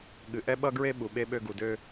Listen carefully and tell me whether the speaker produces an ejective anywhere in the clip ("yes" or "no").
no